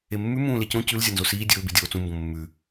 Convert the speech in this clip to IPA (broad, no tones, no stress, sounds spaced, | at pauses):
e mː ʉ m ũː l e c õ c ʉ l zʲ ɐ n z o s iː dʲ ɵː b i dʲ oː t͡s ũ m b õ mː ʉ